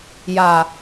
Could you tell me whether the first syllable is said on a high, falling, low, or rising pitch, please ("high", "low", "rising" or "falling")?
low